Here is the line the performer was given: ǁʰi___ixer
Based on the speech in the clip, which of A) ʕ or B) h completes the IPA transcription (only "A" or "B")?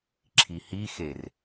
B